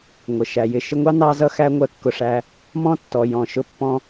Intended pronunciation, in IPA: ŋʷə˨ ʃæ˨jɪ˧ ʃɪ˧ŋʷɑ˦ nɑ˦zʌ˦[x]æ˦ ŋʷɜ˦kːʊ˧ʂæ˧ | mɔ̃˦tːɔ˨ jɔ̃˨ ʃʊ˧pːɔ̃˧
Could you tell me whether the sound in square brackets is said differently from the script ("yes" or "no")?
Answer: no